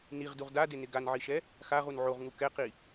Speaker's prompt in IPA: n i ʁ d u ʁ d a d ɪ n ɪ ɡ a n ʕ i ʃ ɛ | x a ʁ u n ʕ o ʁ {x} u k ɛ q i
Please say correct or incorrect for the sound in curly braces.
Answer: incorrect